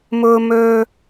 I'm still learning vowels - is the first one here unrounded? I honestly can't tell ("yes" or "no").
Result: no